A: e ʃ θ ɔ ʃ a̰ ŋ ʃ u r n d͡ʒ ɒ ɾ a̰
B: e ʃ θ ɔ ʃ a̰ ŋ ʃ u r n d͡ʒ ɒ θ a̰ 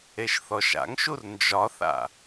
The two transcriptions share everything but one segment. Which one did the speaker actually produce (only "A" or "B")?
B